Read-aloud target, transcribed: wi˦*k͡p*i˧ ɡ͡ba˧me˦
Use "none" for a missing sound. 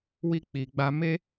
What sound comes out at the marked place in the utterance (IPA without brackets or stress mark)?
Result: k͡p